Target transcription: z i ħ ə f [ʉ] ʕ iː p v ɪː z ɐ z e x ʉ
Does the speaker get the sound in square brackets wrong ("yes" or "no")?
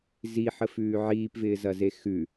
yes